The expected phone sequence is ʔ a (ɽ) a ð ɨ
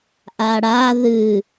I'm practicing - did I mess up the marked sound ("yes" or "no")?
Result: no